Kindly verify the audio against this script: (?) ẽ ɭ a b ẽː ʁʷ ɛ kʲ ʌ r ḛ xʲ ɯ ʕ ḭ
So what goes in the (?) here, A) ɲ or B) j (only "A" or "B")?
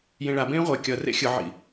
B